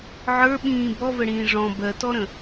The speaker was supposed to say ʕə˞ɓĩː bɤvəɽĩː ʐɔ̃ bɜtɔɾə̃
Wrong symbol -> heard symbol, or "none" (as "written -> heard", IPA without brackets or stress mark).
ɤ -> ɔ